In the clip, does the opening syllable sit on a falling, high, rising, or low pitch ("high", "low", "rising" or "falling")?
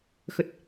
low